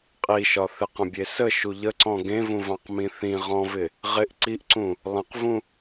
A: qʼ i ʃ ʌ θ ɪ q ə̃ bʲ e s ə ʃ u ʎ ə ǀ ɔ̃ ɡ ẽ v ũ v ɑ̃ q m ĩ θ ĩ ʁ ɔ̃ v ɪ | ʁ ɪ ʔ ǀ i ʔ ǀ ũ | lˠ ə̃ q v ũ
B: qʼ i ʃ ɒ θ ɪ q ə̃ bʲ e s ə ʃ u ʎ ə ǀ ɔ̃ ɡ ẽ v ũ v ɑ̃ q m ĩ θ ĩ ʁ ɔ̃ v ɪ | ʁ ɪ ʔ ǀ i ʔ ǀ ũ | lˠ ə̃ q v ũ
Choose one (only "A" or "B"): B